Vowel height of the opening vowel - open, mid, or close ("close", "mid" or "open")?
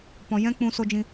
mid